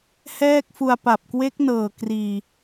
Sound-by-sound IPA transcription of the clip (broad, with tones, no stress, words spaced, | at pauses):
hɛː˥˩k̚fu˧a̯ pa˨˩p̚kwe˦˥k̚nɤː˨˩ kriː˨˩